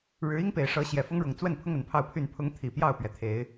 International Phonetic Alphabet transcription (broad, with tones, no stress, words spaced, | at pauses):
ɻɻ̩˨˦i˦ŋpe˨˩ɪ̯ʂɤ˨˦ ɕjɛ˨˩fʊ˦ŋɻʊ˨˩ŋ t͡swə˥˨npʰʊ˦ŋ ə˨˩npʰɑ˥˨ʊ̯pʰy˥˨n pʰʊ˨˦ŋ t̪ʰi˨˩pjɑ˥˨ʊ̯pɥɛ˩t̪ʰe˨˦ɪ̯